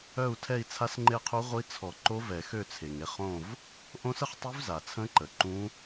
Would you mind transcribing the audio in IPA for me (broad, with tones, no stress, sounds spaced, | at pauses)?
œ˦˨ u̯ tʰ ɛ˦˨ i̯ t͡sʰ a˧˥ s ŋ͡ǃ e˦˨ qʰ u˧˥ ʁʷ i˧˥ t͡sʰ ɔ˨˩˦ ǃ o˧˥ v ɛ˨˩˦ x ø˦˨ t͡sʰ e˩ ŋ e˦˨ χ õ˦˨ v | ʔ õ˧˥ s ə˦˨ χ tˤ y˧˥ v z a˩ t͡sʰ ə̃˧˥ ǃ ə˩ ǃ ũ˧˥